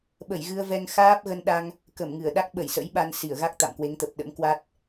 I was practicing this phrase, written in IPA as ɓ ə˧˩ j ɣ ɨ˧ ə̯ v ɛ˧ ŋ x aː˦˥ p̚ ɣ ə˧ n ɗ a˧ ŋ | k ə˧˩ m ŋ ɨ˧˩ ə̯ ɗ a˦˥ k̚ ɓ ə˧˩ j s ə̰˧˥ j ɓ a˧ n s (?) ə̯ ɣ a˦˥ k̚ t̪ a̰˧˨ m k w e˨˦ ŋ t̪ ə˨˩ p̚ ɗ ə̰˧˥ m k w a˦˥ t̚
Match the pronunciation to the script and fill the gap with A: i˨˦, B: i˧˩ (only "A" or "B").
B